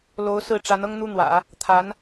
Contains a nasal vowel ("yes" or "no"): no